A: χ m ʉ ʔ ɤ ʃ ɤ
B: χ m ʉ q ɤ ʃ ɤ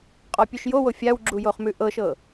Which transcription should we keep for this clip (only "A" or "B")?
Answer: A